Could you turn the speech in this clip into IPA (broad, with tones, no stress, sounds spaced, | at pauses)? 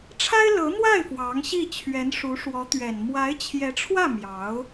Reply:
ʈ͡ʂʰ a˥ ɪ̯ l ɤ˧˥ n̪ w a˥˩ ɪ̯ f w ɑ˧˥ ŋ ɕ i˥˩ t͡ɕʰ ɥ ɛ˧˥ n ʂ u˧˥ ʂ w ɔ˧˥ t̪ ɥ ɛ˨˩ n m w a˧˥ ɪ̯ t͡ɕʰ j ɛ˧˥ ʈ͡ʂʰ w ä˥˩ m j ɑ˧˥ ʊ̯